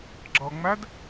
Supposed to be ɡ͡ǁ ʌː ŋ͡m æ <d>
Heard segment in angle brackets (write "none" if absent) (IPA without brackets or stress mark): d